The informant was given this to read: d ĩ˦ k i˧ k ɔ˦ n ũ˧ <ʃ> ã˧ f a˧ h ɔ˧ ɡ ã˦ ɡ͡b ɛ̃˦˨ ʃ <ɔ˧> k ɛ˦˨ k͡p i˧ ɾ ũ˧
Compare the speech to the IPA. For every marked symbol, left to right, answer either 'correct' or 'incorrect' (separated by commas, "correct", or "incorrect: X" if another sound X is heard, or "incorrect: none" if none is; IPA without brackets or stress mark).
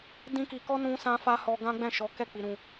incorrect: s, incorrect: ɔ˨˦